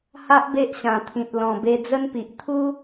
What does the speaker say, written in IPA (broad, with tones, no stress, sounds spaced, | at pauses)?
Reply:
h a˦ ʔ b e˦ ʔ ɕ ã˨˩ t̪ʰ ĩ˨ t̚ l ɔ̃˨˩ b e˧ d͡z ə˦ n p i˨ ʔ t̪ʰ u˦